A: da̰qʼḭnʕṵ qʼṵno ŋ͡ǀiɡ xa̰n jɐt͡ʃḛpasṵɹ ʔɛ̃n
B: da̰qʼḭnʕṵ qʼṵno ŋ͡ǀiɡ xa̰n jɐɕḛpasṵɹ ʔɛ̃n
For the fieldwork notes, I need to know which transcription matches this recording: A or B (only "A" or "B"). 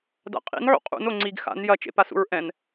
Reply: A